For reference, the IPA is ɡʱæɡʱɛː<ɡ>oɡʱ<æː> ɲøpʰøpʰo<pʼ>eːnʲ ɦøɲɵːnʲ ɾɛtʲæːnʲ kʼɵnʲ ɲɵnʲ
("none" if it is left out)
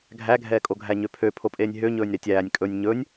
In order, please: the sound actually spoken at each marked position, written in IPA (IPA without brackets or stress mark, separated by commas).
kʼ, æ, pʼ